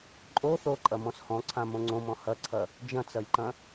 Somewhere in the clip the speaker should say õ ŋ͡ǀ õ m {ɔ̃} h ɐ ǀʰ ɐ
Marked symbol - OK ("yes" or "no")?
yes